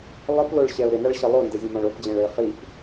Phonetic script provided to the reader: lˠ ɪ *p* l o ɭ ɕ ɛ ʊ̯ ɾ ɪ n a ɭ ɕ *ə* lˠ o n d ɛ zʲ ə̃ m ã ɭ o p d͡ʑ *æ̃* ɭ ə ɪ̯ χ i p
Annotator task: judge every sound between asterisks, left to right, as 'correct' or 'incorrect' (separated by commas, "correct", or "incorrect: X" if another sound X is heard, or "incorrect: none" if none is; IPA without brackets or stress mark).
correct, correct, incorrect: ɛ̃